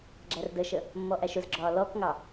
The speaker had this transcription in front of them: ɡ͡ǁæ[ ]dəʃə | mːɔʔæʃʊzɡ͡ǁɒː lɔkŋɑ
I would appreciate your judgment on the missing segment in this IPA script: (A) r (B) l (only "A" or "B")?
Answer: A